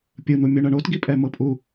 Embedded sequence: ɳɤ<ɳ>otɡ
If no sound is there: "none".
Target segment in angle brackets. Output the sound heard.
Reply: ɳ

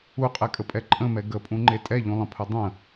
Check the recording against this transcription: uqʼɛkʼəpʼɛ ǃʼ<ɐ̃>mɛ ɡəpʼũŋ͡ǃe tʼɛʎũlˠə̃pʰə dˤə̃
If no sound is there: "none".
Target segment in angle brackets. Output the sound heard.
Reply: ə̃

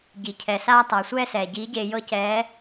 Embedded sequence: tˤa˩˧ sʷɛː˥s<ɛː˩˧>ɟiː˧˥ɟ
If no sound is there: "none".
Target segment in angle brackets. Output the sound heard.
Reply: ɛː˩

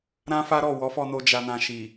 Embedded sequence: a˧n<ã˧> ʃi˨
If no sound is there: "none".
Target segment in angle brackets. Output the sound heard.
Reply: ã˧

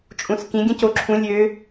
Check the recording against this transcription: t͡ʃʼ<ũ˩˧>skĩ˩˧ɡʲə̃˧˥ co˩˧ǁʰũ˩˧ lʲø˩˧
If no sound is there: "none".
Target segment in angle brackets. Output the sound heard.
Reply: ũ˩˧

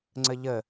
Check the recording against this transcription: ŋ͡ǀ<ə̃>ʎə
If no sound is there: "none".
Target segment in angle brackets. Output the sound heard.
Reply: ə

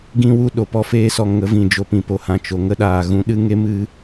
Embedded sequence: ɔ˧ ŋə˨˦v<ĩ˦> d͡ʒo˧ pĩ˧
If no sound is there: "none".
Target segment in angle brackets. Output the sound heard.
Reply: ĩ˨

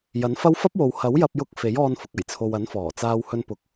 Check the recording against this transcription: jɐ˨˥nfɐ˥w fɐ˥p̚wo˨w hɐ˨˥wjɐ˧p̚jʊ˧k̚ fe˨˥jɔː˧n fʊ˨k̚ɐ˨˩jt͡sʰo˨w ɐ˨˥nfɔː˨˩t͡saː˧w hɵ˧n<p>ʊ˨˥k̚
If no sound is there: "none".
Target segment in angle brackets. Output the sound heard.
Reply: p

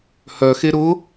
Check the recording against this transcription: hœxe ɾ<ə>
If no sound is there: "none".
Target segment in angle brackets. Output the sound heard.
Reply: ʊ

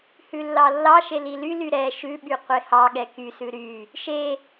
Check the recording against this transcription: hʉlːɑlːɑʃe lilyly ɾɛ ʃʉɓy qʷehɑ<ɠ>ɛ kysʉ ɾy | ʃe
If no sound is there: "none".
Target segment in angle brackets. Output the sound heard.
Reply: ɠ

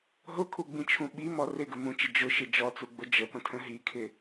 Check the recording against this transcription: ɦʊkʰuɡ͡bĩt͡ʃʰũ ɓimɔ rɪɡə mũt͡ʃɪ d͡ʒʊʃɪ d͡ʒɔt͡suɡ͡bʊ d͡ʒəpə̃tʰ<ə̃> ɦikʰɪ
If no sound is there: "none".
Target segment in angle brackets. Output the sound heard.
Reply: ə̃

